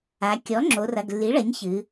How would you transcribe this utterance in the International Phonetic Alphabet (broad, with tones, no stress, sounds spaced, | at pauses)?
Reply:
a˩˧ kʲ ɔ˩˥ ŋ͡ǁ o˩˧ r ɐ˩˧˩ ɡ lː i˩˥ ɭ ɐ˩˥ ɲ ç ɨ˩˧